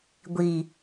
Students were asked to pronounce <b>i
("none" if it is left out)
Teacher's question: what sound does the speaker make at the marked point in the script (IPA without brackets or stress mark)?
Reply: ɡʷ